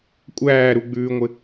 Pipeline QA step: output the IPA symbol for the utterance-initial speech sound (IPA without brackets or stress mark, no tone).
kʷʼ